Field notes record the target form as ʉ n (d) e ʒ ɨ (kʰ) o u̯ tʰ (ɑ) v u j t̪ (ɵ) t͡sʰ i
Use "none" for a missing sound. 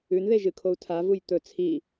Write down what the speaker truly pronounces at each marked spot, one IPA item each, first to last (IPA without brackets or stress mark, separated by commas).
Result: ð, kʰ, a, ɵ